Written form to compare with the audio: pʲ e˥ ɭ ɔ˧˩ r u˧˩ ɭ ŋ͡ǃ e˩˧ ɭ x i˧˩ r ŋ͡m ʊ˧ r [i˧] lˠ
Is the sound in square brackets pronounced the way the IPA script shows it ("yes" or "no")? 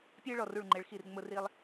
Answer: yes